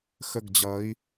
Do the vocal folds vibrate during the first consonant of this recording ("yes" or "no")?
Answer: no